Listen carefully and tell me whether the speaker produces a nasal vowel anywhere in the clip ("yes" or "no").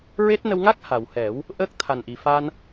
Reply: no